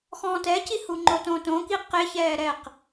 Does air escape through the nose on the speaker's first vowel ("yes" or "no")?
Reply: yes